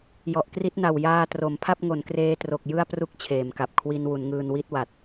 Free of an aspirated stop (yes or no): no